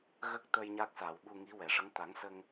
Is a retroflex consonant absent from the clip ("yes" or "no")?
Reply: no